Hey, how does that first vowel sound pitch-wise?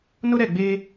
high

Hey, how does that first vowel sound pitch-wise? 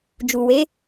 low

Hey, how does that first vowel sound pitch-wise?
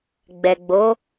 low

